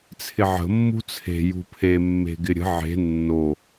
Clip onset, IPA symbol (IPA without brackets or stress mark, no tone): t͡sʰ